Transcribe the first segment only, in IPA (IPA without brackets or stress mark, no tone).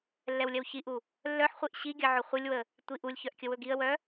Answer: lː